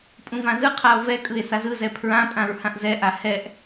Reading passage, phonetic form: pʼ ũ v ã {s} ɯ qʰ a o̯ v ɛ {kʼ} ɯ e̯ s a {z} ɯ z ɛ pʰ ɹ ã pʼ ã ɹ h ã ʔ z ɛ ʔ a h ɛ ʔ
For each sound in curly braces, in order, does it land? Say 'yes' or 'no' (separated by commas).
no, yes, yes